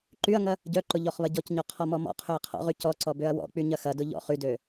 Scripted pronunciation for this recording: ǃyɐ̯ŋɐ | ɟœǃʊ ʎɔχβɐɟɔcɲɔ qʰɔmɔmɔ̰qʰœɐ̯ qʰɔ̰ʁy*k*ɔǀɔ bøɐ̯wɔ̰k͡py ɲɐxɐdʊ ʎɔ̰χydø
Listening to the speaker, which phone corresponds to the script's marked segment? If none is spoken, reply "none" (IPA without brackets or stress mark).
c